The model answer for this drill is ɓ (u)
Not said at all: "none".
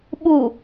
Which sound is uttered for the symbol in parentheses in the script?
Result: u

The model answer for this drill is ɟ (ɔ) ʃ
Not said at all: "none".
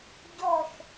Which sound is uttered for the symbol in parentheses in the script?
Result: ɔ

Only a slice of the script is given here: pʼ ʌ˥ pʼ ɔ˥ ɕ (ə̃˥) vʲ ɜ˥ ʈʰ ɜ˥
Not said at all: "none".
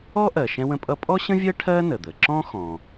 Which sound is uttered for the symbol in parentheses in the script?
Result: ə̃˥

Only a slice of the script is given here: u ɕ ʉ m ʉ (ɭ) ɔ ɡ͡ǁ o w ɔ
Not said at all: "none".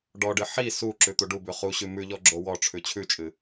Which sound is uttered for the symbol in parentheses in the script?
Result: ʎ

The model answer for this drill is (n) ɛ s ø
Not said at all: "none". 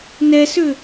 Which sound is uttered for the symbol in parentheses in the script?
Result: n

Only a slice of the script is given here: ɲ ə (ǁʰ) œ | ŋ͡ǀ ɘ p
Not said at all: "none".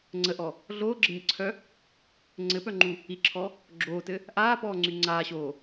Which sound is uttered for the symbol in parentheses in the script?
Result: ǀʰ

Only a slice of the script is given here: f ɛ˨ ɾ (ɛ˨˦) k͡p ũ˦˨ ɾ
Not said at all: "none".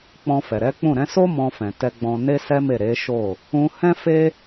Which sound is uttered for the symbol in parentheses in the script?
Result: ɛ˨˦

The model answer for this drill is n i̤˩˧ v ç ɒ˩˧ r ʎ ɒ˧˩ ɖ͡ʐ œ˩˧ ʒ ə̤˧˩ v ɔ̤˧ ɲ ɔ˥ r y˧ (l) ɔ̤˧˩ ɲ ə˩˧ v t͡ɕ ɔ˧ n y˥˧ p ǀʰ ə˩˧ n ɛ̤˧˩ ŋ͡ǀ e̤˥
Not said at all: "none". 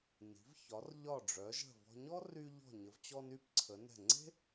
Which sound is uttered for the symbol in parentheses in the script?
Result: ʎ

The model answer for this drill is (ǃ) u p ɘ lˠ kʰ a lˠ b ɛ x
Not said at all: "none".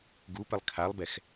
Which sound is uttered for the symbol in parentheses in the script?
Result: ɡ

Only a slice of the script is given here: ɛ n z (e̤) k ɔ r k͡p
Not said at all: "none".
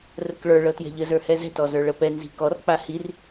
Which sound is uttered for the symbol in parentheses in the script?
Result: i̤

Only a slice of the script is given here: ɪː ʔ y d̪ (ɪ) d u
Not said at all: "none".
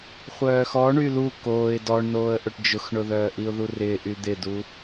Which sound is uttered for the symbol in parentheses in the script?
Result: ɪ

